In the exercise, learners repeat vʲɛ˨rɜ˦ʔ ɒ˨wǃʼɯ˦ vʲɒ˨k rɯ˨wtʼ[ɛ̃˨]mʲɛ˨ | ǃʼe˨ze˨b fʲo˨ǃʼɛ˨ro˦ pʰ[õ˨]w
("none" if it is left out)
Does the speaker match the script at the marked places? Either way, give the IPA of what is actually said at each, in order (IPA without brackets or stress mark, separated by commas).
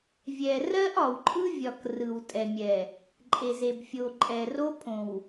ɛ˨, õ˨